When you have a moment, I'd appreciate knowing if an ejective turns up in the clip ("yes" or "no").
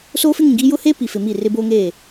no